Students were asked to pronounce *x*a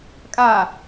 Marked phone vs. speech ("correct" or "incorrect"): incorrect